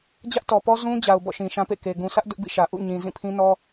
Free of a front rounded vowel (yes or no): yes